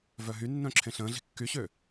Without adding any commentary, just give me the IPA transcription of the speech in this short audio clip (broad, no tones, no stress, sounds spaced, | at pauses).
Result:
v œ ɦ y nː œ̃ ǁʰ ẽ ɬ ə̃ː ɮ i̤ kː y ɕ ø